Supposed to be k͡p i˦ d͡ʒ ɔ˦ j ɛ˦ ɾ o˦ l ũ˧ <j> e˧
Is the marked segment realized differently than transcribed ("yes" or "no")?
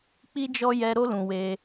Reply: yes